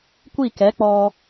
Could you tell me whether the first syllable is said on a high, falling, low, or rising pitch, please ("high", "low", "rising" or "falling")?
falling